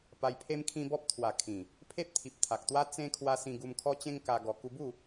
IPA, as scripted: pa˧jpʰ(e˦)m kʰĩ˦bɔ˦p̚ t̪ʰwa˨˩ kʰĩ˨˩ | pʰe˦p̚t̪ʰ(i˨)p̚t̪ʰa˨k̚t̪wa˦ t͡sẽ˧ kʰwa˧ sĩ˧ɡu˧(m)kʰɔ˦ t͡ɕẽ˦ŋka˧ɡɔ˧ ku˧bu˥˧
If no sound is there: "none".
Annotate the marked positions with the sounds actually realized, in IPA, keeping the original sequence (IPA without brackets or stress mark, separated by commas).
e˦, i˨, m